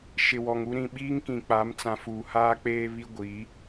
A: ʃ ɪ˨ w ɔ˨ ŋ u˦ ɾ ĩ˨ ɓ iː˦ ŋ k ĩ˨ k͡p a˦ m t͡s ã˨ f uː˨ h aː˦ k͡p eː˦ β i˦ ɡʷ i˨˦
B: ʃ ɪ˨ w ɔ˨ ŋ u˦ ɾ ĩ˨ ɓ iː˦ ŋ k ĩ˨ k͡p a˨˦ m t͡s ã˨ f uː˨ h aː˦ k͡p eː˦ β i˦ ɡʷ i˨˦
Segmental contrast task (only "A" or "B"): B